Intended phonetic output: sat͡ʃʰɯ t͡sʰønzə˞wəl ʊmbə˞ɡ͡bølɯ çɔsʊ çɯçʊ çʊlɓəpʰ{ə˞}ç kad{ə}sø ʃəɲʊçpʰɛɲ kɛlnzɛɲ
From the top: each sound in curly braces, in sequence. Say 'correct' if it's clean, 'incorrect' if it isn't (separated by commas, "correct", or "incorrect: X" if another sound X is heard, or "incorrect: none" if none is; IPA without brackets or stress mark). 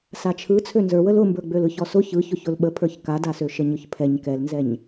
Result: correct, incorrect: a